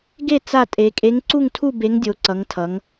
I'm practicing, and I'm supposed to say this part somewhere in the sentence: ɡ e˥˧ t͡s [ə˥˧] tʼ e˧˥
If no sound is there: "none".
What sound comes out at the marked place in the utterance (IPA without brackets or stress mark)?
a˥˧